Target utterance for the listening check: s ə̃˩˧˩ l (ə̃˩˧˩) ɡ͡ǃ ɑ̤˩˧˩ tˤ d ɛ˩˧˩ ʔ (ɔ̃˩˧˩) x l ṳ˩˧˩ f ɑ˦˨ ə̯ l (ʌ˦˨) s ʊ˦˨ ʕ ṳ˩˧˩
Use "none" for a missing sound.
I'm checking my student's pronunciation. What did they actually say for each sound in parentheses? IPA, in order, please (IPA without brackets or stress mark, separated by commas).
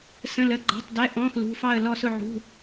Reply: ə˩˧˩, ɔ̃˩˧˩, ɔ˦˨